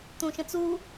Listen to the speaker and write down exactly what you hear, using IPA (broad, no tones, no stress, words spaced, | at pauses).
t̪ũʃə̃t͡su